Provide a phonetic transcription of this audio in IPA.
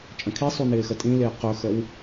t͡ʃʼ ə̃ kʰ i sˤ u n ɪː x ə tʼ ĩ l ɪː q ɵ x ə w

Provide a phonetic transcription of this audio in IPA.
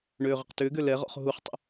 ɳ øː ʁ ə q t ʏː ɡ ø l ɛ ʁ ɔ̰ χ ɦ u χ tˤ ə̰

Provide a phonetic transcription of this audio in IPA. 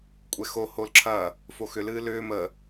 kʷʼ ɛ x o h o l ǁʰ ɐ | f o x ʏ l ɨː l ʏː m ə

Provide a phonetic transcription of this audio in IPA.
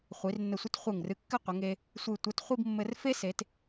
χʷ i˩˧ r nː ɘ˧˩ sʷ ɘ˥ t χʷ e˧˩ ŋ r ɨ˧ kː ɘ˥˧ qʷ ɘ˩˧ ŋ e˧ | sʷ ɨ˧˩ tʷ ɛ˧ t χʷ i˥˧ b mː ɘ˧ r f e˥ s e˩˧ t

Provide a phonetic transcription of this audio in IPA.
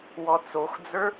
w ɔ t͡s o x d͡z ə˞

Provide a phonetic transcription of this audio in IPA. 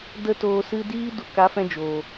d ə˦ t oː˧ s ɨ˧ d iː˦ d u˧ k a˨˦ f ɛ̃˧ d͡ʒ oː˨

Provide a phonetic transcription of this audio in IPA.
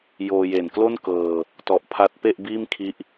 j oː˧ j e˨˩ n k l o˥˩ n k ɤː˧ | t ɔ˨˩ ʔ pʰ a˦˥ t̚ p e˥˩ ʔ b iː˥˩ m kʰ i˦˥ ʔ

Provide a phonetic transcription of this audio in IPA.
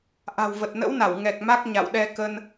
ʔ a̤˨˩ w v ə˨˩ t̚ n ə̰˧˥ w n a˧˩ w ŋ ɛ˨˩ k̚ m a˦˥ k̚ ɲ a̰˧˨ w ɗ ɛ˧ k ə˧ n

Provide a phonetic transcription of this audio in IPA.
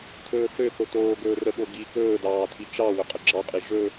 tʰ ɵː θ ø θ o t oː ɡ ɵː r ə ɠ o ɡ i k ɵː d ɑː tʰ i t͡ʃ ɑ w ɵ qʼ ə ɡ͡ǁ ɑ qʼ i ʒ ɵ

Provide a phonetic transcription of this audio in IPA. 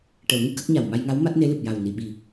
ʈ ə˨˩˦ w ŋ ɨ˧ k ə˦˥ k̚ ɲ a˨˩ w m a˧ j ŋ a˧˥ w m a˦˥ t̚ n e˧˥ l ɨ˨˩ p̚ j a˨˩ w n i˨˩˨ ɓ i˨˩

